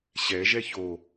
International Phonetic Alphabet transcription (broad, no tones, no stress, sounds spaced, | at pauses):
ɕ ɛ ʒ ɛ ç o